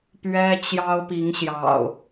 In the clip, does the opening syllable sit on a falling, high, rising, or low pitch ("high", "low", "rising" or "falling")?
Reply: high